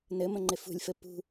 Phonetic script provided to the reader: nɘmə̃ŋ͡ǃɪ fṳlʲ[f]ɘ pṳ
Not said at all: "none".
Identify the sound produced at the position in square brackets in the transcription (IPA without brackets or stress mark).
f